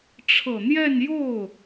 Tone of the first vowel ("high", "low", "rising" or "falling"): low